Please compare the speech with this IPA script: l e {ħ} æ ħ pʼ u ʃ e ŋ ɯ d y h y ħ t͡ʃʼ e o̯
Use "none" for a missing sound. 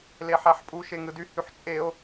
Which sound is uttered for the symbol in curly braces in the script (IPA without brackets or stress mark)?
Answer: ħ